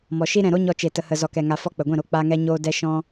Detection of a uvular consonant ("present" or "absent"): absent